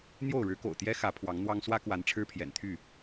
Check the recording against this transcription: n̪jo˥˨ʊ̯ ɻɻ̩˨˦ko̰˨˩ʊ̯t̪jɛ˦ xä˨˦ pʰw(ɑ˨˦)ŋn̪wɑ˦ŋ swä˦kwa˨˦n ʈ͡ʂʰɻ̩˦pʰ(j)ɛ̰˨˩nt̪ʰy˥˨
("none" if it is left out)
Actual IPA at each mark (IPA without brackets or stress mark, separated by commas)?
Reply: ɑ˨˦, j